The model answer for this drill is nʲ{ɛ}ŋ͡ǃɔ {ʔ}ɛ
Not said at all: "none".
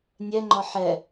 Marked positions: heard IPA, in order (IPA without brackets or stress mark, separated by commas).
ɛ, ħ